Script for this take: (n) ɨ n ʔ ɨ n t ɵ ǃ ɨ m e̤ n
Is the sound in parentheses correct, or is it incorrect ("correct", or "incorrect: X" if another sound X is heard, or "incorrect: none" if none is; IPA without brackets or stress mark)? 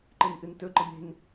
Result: incorrect: ǃ